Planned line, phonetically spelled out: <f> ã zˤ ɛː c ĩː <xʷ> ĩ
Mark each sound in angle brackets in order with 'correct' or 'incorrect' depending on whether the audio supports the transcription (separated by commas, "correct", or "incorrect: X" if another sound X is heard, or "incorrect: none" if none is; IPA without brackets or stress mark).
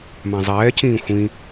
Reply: incorrect: m, correct